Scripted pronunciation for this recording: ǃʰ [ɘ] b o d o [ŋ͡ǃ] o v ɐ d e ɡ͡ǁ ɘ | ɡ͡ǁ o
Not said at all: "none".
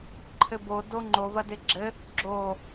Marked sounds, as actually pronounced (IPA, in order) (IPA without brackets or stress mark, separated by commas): ɘ, ŋ͡ǃ